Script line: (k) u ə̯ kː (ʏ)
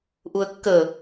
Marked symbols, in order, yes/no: no, no

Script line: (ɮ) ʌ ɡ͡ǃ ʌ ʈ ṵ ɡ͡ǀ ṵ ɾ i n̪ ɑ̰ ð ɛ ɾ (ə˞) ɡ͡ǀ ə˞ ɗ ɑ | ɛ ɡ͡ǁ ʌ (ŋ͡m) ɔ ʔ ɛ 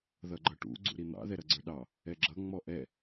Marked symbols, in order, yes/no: no, no, yes

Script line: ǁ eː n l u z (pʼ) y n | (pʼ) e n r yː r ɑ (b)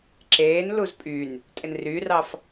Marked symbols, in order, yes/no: yes, no, no

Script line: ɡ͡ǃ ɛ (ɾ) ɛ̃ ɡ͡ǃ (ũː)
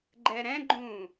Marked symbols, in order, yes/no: yes, yes

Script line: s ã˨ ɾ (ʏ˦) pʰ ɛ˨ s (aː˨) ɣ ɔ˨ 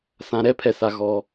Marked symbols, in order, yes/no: no, no

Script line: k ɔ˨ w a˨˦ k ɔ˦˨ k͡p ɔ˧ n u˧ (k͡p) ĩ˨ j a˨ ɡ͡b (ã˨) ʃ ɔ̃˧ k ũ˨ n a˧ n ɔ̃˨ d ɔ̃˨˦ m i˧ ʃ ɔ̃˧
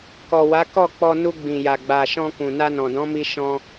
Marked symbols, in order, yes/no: no, no

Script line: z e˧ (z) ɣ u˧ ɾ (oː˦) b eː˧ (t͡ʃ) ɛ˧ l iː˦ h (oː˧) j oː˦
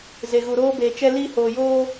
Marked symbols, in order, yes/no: no, yes, yes, yes

